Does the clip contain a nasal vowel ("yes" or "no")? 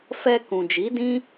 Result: yes